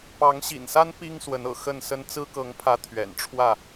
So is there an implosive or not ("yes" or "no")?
no